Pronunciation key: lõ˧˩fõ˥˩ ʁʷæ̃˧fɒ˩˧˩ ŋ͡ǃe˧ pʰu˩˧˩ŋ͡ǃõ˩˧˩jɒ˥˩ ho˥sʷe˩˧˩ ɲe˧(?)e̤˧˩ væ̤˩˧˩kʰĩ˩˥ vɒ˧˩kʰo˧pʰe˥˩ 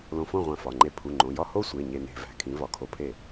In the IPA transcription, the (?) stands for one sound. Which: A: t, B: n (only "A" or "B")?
B